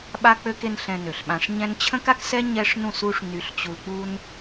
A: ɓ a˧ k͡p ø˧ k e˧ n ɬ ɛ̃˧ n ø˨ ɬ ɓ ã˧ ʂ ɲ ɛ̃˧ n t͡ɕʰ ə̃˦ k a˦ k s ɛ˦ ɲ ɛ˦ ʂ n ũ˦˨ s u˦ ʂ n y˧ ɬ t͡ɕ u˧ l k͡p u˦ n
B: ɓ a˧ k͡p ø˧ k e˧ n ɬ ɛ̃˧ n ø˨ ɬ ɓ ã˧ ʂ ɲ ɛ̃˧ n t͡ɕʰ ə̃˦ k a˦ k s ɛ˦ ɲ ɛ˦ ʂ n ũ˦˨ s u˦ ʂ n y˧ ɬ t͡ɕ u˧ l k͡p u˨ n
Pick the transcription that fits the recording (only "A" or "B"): A